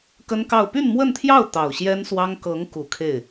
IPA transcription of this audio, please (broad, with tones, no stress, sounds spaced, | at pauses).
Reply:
k ə˥ n k ɑ˥˧ ʊ̯ p y˥˧ n m w ə˥˧ n t̪ʰ j ɑ˥˩ ʊ̯ t̪ ɑ˨˩ ʊ̯ ɕ j ɛ˥ n s w ɑ˥ ŋ k ɤ˧˥ ŋ k u˨˩ kʰ e˥˩ ɪ̯